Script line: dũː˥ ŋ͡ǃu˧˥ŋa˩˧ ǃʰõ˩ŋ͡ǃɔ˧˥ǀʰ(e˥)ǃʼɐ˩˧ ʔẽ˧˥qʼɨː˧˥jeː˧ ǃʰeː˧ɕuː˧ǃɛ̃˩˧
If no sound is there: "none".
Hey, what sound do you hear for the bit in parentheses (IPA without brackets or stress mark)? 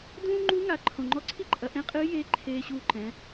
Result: i˥